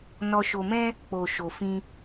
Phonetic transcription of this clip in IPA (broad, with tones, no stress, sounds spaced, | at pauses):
n ɔ˧ ʃ o˧ m ɛ̃˦ | k͡p o˨ ʃ o˧ f ĩ˦